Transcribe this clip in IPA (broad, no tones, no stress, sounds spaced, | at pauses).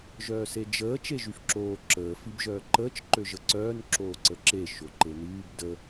ʒ œː s e d͡ʒ əː t͡ʃ e ʒ y f ǁ oː ǁ əː f i b ʒ œː ǃ əː t͡ʃ ǃ ø ʒ ə ǀ œː n ǁ oː ǀ ə ǁ e ʃ o ǃ e n yː b d ə